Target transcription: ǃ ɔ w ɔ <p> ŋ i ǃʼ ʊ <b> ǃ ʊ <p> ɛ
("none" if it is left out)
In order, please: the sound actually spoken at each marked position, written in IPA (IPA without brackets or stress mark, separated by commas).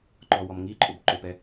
m, b, p